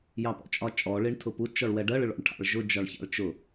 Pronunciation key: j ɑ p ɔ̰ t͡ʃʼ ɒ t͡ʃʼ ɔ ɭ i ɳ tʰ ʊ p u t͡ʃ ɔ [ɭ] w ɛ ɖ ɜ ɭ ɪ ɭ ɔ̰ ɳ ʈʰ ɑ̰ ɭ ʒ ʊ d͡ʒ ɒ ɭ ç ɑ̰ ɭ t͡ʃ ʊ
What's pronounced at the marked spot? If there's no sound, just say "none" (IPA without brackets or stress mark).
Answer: ɭ